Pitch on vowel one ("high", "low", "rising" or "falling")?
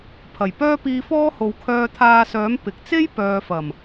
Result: low